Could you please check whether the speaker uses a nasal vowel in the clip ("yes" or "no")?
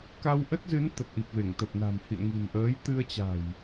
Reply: no